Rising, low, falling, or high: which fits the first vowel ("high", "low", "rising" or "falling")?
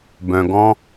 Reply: low